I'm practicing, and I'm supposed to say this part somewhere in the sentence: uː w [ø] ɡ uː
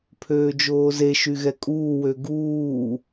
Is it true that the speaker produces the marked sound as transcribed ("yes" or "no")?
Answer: yes